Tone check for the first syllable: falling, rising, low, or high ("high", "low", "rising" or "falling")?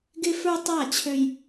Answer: high